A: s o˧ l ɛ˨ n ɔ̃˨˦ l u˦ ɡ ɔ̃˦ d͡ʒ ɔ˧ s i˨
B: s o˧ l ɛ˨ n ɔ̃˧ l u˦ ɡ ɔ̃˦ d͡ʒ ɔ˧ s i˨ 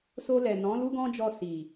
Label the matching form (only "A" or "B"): A